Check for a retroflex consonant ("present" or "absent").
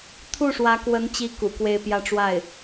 present